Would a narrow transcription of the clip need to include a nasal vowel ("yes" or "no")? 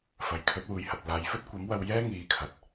no